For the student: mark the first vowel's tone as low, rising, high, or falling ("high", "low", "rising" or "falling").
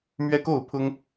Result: high